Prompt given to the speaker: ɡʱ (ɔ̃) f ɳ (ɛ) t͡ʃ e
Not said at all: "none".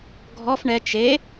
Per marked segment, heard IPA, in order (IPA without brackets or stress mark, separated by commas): ɔ, ɛ